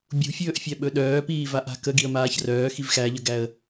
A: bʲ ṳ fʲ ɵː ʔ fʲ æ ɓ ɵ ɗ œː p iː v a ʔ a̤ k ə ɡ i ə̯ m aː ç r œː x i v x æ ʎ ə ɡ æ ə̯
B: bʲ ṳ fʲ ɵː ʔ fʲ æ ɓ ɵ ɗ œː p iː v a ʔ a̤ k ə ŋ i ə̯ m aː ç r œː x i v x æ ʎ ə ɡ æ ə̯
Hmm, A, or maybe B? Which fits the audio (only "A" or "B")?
A